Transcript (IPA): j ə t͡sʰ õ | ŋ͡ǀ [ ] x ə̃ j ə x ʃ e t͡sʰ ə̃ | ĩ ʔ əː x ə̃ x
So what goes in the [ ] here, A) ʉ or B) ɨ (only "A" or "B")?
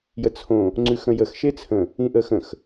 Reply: A